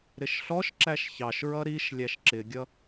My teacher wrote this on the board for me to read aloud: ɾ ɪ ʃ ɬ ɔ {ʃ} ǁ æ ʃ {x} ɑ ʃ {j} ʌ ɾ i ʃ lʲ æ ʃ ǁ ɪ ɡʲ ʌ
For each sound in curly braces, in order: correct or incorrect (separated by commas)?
correct, incorrect, incorrect